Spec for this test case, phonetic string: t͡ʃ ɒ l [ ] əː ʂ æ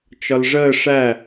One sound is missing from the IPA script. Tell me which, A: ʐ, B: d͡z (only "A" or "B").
A